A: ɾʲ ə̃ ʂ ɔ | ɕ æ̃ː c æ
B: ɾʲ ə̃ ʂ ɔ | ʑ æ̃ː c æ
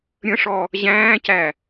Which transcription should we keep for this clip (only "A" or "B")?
B